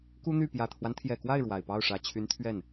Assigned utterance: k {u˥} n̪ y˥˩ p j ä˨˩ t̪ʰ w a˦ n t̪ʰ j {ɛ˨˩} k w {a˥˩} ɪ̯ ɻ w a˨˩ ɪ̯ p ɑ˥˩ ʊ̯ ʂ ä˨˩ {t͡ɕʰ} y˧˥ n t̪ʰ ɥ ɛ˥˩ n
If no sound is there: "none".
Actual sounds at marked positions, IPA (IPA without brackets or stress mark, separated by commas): u˥, ɛ˨˩, a˥˩, t͡ɕʰ